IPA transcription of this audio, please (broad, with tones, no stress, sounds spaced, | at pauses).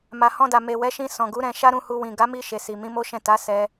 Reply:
m a˨ h ɔ̃˧ d a˨ m e˨ w ɛ˨˦ ʃ ĩ˧ s ɔ̃˨ ɡ u˨˦ ɾ ɛ̃˧ ʃ a˦ ɾ ũ˧ h u˧ w ĩ˨ ɡ a˨˦ m i˧ ʃ e˨ s i˨ m ĩ˨˦ m o˦ ʃ ɛ̃˦˨ t a˨˦ s ɛ˧